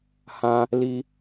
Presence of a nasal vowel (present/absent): present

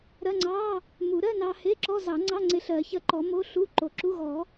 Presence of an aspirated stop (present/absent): absent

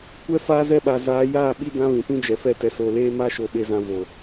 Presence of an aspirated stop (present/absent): absent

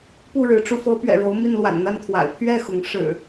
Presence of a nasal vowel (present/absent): absent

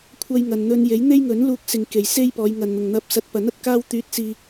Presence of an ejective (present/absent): absent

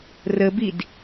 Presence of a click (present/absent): absent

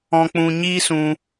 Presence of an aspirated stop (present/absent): absent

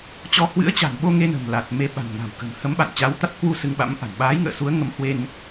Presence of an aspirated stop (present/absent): absent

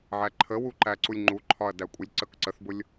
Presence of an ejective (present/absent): present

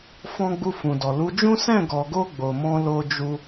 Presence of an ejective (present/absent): absent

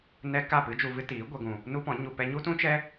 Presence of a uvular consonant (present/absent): absent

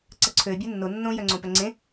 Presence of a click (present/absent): present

